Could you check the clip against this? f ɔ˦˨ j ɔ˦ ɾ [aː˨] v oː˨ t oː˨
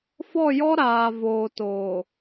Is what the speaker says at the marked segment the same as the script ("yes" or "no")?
yes